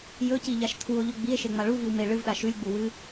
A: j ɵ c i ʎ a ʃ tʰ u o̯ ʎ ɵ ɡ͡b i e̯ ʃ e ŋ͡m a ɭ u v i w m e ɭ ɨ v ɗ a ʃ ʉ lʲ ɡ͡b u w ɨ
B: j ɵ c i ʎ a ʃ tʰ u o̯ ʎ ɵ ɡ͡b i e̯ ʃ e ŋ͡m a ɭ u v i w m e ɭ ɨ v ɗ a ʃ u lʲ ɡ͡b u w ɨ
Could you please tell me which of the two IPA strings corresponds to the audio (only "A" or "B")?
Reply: A